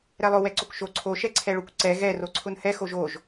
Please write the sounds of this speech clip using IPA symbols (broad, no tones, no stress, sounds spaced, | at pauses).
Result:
ɾ ɛ lˠ ʊ w ɛ ǀ o k ʃ o ǀʰ o ʃ ɛ ǀʰ ɛ ɭ ʊ kʷ ǀ ɛ ɣ ɛ r o ǀʰ ʊ n h ɛ x o ʒ o ʒ